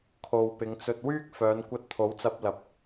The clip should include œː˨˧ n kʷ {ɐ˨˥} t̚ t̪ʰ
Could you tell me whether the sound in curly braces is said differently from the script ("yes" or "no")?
yes